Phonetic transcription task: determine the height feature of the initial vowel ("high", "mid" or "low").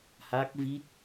low